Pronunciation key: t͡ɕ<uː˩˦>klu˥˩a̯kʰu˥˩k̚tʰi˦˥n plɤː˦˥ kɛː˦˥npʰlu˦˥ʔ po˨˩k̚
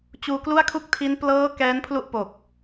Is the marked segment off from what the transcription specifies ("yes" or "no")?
yes